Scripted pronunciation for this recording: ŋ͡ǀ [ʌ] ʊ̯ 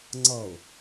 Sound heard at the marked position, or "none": ʌ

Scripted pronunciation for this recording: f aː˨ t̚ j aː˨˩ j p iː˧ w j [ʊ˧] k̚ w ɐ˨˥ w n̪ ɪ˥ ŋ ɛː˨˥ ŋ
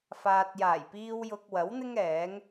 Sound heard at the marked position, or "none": ʊ˧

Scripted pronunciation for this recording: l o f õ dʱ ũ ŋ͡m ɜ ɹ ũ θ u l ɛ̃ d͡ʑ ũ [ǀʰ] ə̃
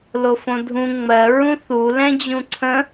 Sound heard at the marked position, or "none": ǀʰ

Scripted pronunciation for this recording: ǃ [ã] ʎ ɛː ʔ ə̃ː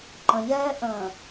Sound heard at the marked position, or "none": ə̃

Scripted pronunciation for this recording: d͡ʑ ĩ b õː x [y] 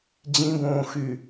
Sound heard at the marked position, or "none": y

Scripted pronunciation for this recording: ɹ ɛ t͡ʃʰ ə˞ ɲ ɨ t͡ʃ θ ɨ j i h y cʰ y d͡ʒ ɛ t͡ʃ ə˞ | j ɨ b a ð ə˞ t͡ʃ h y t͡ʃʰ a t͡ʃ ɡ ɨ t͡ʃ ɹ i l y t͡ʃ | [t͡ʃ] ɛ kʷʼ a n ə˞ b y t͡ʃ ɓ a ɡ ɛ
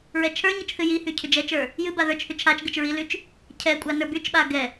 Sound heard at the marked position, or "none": cʰ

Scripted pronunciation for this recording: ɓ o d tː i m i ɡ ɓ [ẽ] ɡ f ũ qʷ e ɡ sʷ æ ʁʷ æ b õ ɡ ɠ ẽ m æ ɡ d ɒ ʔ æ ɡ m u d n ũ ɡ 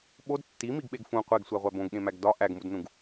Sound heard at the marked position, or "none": e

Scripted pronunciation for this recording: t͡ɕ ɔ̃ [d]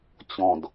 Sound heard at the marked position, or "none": d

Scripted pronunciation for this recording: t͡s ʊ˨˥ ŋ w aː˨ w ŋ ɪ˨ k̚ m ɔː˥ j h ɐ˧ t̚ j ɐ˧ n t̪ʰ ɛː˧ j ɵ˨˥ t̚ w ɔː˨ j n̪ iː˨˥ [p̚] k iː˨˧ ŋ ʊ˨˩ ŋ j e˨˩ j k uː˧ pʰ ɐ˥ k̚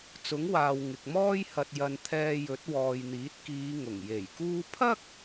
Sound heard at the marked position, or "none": t̚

